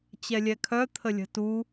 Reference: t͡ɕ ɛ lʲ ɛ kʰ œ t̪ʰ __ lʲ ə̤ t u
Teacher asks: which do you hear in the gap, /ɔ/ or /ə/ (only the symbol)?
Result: ə